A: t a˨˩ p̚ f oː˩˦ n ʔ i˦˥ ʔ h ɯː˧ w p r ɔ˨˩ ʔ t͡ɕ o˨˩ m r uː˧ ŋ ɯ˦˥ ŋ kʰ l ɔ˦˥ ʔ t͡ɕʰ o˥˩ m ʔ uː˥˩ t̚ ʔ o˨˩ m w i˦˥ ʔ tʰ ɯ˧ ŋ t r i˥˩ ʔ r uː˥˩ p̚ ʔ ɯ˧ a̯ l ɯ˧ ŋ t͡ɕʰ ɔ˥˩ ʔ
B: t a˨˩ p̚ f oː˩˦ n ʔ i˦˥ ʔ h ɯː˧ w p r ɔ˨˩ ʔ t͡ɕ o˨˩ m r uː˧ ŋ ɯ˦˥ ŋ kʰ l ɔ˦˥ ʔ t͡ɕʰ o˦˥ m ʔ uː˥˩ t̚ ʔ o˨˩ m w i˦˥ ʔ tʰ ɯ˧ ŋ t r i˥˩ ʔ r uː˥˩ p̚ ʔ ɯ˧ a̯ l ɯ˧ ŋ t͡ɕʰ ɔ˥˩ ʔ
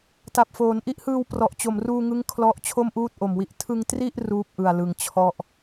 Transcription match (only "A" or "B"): A